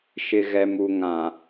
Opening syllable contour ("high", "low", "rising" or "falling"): low